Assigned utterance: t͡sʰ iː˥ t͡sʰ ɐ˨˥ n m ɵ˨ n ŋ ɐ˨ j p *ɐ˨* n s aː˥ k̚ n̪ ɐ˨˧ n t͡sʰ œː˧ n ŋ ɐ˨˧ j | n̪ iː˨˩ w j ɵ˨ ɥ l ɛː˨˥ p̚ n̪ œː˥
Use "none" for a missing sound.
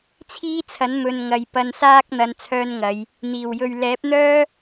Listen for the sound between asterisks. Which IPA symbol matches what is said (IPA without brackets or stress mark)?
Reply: ɐ˧